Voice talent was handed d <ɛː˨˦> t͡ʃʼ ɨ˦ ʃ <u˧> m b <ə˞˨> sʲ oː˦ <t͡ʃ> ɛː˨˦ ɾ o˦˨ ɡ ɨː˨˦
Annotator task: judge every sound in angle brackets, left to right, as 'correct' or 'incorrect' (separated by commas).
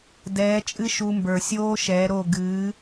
correct, correct, correct, incorrect